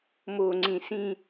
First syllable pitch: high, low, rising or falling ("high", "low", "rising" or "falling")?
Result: low